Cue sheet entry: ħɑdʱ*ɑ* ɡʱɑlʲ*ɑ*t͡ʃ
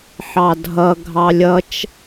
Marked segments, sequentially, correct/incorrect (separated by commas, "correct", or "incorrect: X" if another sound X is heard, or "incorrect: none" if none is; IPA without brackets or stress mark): incorrect: ʌ, incorrect: ʌ